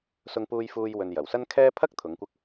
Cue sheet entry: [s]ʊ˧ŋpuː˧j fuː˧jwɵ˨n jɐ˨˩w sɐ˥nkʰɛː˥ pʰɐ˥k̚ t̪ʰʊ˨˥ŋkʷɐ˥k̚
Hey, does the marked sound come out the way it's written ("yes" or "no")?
yes